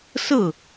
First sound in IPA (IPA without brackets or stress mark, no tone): s